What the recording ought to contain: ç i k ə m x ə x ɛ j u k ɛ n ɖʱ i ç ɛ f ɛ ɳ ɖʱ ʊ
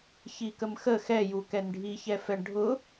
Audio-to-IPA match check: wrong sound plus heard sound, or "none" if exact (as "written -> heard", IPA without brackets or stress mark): none